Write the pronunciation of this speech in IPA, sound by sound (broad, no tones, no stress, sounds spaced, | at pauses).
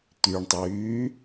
t̪ y ɳ tˤ yː